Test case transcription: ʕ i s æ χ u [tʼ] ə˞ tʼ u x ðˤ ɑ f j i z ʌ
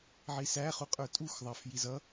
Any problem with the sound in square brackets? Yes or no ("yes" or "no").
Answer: yes